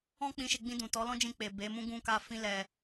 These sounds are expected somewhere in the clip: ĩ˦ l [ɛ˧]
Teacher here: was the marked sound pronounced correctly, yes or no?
yes